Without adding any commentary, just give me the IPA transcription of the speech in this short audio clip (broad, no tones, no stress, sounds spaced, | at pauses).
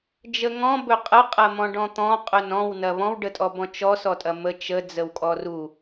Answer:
d͡ʒ ə ŋ ɔ̃ b ɵ qʼ ə qʼ ɐ m ɔ̃ ɖ ɔ̃ t̪ ɔ̃ qʼ ɵ n ɔ̃ w n ɐ β ɔ̃ w ɖ ə tʼ ɔ b ɔ̃ t͡ʃ ɔ s ɔ tʼ ɐ m ə t͡ʃ ə d͡z ə w kʼ ɔ r u